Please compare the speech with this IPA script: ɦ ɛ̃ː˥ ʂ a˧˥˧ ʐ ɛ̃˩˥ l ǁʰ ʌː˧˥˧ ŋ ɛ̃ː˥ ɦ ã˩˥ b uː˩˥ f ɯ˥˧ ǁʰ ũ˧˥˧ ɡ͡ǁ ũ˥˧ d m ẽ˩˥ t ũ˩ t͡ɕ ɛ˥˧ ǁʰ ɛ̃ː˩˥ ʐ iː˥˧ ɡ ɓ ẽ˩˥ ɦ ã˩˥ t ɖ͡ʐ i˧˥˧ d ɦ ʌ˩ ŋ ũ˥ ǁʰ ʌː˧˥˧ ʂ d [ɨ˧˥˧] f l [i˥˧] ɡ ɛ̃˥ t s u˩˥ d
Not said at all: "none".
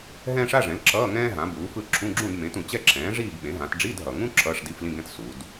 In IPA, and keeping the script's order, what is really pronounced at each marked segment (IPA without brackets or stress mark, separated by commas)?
i˧˥˧, ĩ˥˧